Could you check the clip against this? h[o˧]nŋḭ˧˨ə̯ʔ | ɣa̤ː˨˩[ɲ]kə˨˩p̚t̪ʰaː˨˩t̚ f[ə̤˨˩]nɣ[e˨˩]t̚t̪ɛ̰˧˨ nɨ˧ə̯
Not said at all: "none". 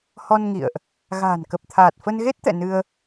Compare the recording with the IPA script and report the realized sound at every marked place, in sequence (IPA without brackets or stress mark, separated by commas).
ɔ˧, n, ə˧, e˦˥